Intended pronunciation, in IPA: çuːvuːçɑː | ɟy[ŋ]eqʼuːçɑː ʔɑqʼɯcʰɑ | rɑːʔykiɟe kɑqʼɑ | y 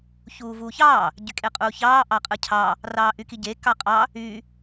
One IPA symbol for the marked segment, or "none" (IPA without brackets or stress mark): kʼ